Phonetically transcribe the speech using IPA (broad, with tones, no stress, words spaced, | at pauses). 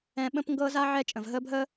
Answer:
ɛ̃˦ ɓə̃˦pŋɡɤː˦z a˦ ʕɛ˦ t͡ʃʼə̃˨vɦəː˦bʱəː˦